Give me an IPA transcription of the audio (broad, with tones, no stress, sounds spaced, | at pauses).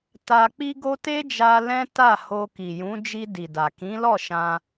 t a˧ k͡p i˦ ɡ o˦ t e˦ d͡ʒ a˧ l ɛ̃˦ t a˦˨ h o˧ k i˨ j ũ˨˦ d͡ʒ i˧ d i˨ d a˨ k ĩ˨˦ l ɔ˦˨ ʃ ã˧